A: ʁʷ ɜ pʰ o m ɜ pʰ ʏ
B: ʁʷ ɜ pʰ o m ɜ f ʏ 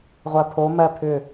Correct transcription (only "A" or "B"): A